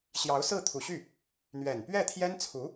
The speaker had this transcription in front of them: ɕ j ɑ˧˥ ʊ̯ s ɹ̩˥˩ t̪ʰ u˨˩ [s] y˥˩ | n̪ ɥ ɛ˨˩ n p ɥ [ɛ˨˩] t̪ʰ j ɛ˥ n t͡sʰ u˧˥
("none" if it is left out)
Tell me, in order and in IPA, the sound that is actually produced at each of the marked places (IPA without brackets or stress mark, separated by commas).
ɕ, ɛ˥˩